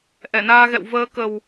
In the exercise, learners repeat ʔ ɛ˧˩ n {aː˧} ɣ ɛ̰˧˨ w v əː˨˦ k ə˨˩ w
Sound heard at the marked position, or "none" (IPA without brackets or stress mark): aː˧